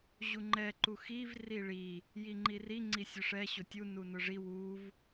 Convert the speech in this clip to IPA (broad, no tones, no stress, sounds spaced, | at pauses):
ʑ u ŋ͡ǃ ɛ ǃ u x i v r i ɭ i | j i ŋ͡ǃ i r i ŋ͡ǀ i sʲ ʊ ʂ ɛ ɕ ʊ tʲ u n u n ʊ ʐ i w u v